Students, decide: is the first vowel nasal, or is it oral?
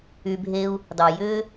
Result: oral